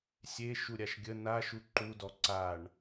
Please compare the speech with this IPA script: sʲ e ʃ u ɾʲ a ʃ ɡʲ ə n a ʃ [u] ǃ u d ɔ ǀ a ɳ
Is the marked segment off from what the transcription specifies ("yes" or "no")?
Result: no